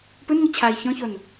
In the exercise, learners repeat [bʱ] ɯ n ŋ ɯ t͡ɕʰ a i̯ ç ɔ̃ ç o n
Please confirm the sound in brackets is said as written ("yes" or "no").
no